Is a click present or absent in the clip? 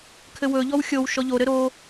absent